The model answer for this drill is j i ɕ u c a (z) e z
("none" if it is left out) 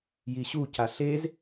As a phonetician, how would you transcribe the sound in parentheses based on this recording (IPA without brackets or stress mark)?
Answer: ɬ